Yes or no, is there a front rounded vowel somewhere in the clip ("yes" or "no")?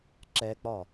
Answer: no